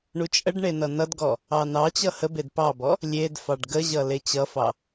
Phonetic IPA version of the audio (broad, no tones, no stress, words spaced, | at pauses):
ɳut͡ʃʼəɖɳe nʌnʌdɡɔ | ɑnɑt͡ɕʌ həbed pɑbɔ | lʲedfɑɖ ɡəʑʌ let͡ɕʌfɑ